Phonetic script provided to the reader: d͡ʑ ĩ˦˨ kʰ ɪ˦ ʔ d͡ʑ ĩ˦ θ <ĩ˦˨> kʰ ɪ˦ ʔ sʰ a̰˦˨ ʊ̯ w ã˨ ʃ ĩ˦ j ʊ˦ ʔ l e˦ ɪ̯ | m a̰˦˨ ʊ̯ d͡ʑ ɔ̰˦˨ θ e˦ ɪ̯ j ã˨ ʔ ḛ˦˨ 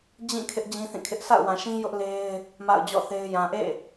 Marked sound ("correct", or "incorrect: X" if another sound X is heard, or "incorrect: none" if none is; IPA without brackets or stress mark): correct